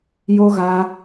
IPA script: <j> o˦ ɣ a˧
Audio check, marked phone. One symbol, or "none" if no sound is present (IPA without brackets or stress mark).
j